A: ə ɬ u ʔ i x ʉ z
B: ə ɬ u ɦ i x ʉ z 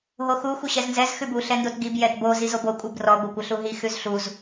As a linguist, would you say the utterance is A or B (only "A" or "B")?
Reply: B